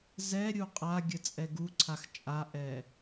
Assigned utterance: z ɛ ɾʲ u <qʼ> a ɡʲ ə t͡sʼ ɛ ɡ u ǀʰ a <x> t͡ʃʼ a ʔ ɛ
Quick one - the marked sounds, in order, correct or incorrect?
correct, correct

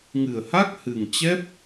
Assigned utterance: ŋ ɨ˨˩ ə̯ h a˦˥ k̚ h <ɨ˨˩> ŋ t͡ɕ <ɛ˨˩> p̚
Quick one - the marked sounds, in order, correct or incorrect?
correct, incorrect

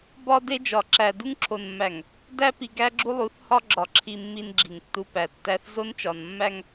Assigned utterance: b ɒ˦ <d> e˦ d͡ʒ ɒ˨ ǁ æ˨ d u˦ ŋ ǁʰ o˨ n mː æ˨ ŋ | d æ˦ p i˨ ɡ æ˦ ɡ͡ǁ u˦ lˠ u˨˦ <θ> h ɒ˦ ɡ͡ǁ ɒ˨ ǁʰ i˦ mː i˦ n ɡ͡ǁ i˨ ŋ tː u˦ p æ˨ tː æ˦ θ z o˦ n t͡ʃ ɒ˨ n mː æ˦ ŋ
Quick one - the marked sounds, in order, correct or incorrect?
correct, correct

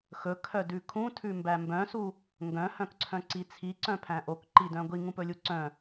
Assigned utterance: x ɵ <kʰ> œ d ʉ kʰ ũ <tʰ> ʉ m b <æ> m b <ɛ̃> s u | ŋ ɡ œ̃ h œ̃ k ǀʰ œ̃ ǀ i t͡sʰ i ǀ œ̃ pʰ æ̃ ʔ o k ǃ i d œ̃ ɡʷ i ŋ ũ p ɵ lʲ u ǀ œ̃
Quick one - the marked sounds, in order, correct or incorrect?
correct, correct, correct, incorrect

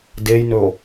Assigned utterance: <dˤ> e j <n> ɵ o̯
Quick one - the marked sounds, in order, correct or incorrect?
incorrect, correct

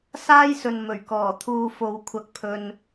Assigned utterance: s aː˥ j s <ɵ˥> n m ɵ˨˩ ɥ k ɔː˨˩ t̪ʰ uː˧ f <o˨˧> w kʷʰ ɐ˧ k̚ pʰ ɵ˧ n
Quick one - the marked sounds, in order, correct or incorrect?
incorrect, correct

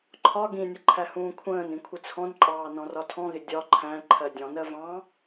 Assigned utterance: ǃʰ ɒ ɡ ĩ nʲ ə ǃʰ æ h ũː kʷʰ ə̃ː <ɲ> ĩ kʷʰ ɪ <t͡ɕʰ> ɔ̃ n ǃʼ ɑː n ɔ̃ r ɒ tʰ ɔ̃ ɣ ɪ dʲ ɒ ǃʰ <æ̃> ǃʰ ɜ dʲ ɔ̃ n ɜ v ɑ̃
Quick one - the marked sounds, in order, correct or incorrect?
incorrect, incorrect, correct

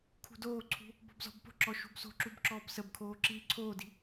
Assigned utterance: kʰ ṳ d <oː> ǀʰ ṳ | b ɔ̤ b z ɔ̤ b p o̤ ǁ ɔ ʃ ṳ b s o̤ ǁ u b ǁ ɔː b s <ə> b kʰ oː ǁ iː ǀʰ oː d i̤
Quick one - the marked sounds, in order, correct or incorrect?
correct, correct

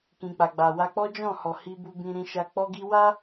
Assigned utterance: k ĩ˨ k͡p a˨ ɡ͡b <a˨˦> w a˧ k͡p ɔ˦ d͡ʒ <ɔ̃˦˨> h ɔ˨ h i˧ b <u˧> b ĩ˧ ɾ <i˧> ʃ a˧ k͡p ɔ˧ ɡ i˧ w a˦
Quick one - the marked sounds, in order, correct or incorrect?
incorrect, correct, correct, incorrect

